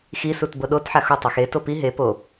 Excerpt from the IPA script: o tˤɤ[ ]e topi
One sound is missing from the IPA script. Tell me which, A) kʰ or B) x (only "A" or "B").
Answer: B